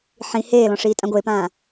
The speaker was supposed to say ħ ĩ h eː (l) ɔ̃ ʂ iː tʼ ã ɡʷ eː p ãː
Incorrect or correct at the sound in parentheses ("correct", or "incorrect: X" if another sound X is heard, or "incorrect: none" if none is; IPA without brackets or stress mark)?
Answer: correct